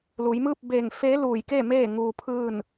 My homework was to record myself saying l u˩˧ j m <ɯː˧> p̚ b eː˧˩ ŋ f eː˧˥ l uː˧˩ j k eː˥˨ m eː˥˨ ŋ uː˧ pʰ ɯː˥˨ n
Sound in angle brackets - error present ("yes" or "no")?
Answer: yes